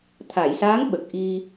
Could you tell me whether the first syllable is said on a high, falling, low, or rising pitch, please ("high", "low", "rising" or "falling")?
low